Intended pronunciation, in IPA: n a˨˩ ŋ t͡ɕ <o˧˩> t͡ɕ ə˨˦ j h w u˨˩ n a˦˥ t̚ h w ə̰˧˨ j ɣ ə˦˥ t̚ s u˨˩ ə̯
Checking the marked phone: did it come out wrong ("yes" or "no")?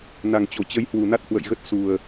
no